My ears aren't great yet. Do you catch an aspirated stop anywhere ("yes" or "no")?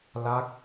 no